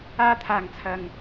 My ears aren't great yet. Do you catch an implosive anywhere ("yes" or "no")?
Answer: no